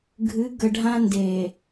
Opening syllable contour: rising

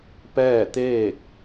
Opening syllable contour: falling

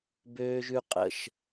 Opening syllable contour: high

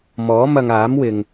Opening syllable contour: rising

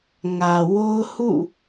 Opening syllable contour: low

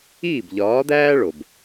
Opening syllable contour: falling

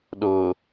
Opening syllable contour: low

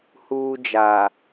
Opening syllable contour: high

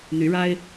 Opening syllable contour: rising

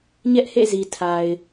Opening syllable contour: high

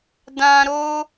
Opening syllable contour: high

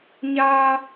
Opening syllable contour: high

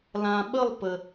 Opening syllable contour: low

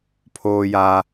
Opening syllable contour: high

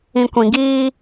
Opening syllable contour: low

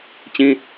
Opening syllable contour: high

